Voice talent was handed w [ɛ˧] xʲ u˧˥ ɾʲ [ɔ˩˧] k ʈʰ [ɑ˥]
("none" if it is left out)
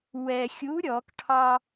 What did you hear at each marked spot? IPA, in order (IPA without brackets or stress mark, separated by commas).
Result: ɛ˧, ɔ˩˧, ɑ˥